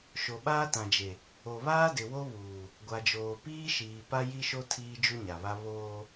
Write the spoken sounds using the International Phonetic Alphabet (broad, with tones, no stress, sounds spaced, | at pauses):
ʃ o˨ ɓ aː˦ t ã˨ d͡ʒ e˨ | o˨ β aː˦ d ɪ˨ w o˦ β uː˨ | ɡʷ a˨ d͡ʒ oː˨ p iː˦ ʃ iː˨ p a˦ j i˦ ʃ o˦ tʰ iː˦ d͡ʒ u˦ ɲ a˨ β a˦ β oː˦